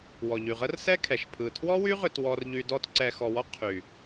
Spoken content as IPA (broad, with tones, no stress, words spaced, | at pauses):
wɔ˨ʎy˨ʁə˦rsɛ˦ kʰɛ˨ʃpʰɯ˨tʰwɔ˦wy˦ ʁʏ˦twɔ˦rʎy˦ dɔ˦tǀɛ˧xɔ˧wɔ˦ qʰy˨